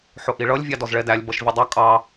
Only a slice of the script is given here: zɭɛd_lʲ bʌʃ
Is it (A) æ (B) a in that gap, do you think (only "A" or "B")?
A